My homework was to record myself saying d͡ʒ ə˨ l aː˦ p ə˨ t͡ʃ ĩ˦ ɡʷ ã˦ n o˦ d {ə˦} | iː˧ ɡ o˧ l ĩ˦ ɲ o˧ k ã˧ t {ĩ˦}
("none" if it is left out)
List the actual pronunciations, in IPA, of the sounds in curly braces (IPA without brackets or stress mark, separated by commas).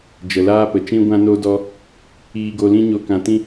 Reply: ɔ˦, ĩ˦